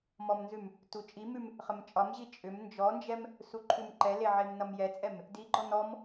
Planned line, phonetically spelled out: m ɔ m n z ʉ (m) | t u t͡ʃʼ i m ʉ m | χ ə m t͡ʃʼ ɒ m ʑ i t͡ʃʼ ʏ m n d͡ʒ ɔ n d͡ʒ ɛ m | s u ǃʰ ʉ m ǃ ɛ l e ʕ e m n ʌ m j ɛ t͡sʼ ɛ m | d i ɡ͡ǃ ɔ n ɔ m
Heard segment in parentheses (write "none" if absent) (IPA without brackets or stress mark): m